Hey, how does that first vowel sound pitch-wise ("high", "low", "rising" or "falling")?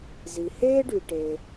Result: low